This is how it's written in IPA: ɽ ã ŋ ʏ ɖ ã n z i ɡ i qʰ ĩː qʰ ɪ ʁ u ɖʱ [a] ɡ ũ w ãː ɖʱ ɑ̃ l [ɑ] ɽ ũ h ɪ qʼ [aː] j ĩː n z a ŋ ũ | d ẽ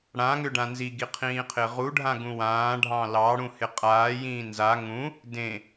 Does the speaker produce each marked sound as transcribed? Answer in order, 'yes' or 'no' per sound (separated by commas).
no, yes, yes